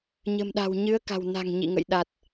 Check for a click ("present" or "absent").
absent